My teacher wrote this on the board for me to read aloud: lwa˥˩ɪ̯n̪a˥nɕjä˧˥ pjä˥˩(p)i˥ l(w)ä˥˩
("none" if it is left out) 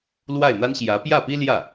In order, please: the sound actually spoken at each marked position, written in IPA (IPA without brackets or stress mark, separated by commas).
p, j